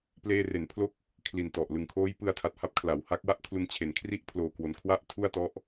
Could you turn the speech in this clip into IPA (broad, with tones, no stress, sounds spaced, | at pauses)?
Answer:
p l eː˧ r e˩˦ n pʰ l o˦˥ k̚ | kʰ l i˨˩ n t ɔ˨˩ ʔ l ɯ˨˩ ŋ kʰ oː˦˥ j p ɯ˧ a̯ tʰ a˨˩ t̚ h a˥˩ p̚ kʰ l a˩˦ w h a˦˥ k̚ w a˥˩ ʔ kʰ l u˧ n t͡ɕʰ e˩˦ n kʰ r i˦˥ ʔ pʰ l oː˧ k w o˧ n kʰ w a˥˩ ʔ tʰ u˥˩ a̯ t ɔ˦˥ ʔ